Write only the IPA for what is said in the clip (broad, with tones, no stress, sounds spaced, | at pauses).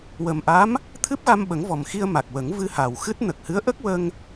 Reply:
w ə˨˩ m ʔ a˧˥ m | t̪ʰ ɨ˦˥ p̚ ɣ a˧ m ɓ ə˨˩˦ ŋ v ɔ˨˩ m x i˧ ə̯ m a˨˩ k̚ w ə˨˩˦ ŋ v ɨ˧ h a˨˩ w x ɨ˦˥ t̚ n ə˨˩ k̚ h ɨ˧˥ ə̯ ʔ ə˦˥ k̚ w ə˧ ŋ